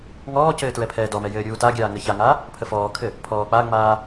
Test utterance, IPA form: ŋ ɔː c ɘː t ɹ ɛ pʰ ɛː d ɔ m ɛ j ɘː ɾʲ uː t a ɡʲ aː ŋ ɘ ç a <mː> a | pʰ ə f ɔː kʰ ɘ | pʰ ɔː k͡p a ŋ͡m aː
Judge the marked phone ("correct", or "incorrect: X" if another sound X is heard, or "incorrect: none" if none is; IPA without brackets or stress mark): incorrect: ŋ